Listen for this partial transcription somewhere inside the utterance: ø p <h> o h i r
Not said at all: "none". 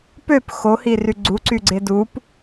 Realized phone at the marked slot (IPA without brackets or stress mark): x